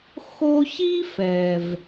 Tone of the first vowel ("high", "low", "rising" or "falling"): high